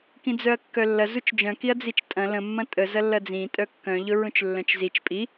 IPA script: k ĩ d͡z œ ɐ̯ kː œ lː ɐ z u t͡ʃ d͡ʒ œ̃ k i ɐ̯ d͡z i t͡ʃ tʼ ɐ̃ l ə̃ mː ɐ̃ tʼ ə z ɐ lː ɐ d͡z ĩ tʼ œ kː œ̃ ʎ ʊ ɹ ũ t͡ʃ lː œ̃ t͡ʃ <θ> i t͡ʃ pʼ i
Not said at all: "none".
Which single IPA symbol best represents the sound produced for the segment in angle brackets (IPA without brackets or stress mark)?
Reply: z